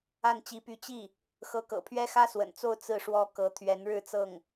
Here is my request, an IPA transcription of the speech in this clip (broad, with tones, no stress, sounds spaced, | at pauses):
a˥˩ n t͡ɕ i˧˥ p y˧˥ t͡ɕ i˥˩ | x ɤ˧˥ k ɤ̰˨˩ pʰ ɥ ɛ˥ x ä˥ s w ə̰˨˩ n t͡s o˥˧ ʊ̯ t͡s ɹ̩˥˩ ʂ w ɔ˥ k ɤ˧˥ t̪ʰ ɥ ɛ˧˥ n ɻ ɻ̩˥˧ t͡s ɤ˥˩ ŋ